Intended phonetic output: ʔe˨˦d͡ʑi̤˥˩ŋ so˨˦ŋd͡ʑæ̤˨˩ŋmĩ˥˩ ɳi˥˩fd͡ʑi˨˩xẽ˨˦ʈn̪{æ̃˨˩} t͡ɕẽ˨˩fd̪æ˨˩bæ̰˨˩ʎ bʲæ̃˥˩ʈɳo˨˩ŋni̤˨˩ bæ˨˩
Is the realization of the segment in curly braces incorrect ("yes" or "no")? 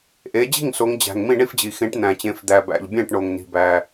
no